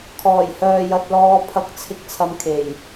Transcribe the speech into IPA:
kʰ ɔː˨˩ j h œː˨ j ɐ˧ t̚ l ɔː˧ pʰ ɐ˧ k̚ t͡sʰ ɪ˧ k̚ t͡sʰ ɐ˧ m kʰ e˨˩ j

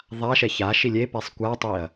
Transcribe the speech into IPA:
ðˤ a ʃ ɛ ç a ʃ i lʲ e p ɛ sˤ kʷ a tˤ i ɐ̯

